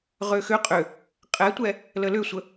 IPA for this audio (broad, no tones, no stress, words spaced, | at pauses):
ʁøxʏ qʼʏ | qʼɛtʷɛ | ləlʏsʷə